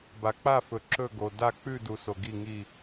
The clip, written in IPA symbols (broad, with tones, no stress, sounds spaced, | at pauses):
b a˨ k͡p a˦˨ f ɵ˨ ǁ ɵ˦˨ ɡ o˨ d a˦˨ k͡p ʉ˦˨ d u˨ s o˨ ɡ i˦˨ ŋ i˦˨